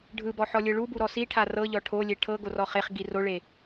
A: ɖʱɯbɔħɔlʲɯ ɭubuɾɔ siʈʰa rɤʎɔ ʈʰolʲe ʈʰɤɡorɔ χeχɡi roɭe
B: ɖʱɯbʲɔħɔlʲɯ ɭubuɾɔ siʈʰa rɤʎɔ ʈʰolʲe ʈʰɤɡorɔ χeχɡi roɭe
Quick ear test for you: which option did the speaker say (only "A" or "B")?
A